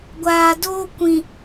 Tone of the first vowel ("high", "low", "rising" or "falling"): low